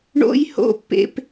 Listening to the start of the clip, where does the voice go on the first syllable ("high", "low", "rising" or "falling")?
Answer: high